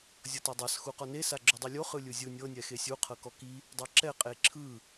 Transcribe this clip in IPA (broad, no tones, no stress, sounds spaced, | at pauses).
zʲ ɤ t a dˤ a s x u q ɔ n e s a ɡ͡ǁ o dˤ i lʲ o χ ɯ lʲ ɯ zʲ ɯ nʲ ɤ nʲ ɛ x e sʲ u qʰ ɤ k ɔ k i | dˤ ɤ ǁ ɛ qʼ e ǁʰ ɯ